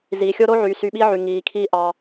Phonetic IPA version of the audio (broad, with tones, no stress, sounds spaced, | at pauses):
z iː˨ xʲ o˦ ɾ o˦ ʕ y˨ s y˧ ɓ i˦ ʕ y˨ ŋ iː˨ kʰ iː˦ ʔ ɑ˧